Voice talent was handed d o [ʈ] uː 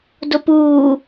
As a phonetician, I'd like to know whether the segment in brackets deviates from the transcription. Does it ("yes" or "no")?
yes